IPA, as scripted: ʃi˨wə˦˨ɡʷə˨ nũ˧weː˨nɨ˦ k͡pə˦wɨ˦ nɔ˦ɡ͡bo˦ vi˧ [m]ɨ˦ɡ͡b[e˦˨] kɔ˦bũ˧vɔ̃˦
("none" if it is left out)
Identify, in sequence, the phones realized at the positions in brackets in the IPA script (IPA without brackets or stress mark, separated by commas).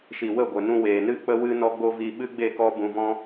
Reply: ɓ, e˦˨